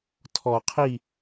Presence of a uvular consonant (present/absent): present